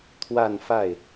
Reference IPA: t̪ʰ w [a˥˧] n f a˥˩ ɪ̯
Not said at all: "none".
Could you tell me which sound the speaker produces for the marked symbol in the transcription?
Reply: a˥˧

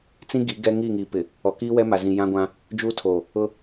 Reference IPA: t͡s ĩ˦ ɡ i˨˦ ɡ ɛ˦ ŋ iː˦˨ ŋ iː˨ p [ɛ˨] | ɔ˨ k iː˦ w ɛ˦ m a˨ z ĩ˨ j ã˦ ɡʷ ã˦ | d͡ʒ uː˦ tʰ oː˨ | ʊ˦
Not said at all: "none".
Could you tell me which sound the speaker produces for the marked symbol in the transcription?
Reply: ɪ˨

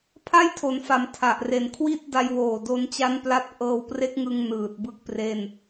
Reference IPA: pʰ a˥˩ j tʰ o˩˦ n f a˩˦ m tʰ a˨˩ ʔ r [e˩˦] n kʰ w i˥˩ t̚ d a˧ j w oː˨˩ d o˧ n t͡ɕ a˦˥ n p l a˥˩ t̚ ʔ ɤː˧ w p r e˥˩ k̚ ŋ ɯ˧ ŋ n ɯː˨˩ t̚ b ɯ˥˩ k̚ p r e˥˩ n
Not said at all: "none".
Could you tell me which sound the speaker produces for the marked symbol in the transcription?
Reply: e˨˩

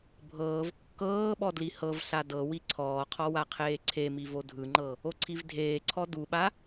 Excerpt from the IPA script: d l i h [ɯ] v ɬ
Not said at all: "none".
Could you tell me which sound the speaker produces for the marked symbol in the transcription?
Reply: ɤ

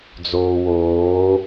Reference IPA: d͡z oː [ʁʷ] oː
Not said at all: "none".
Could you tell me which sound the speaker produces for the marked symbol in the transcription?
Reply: w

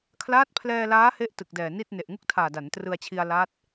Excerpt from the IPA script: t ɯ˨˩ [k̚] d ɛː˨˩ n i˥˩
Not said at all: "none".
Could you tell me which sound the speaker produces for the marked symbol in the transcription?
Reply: k̚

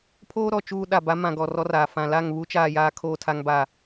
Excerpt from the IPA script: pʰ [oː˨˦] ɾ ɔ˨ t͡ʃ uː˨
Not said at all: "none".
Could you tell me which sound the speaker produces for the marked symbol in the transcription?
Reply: oː˦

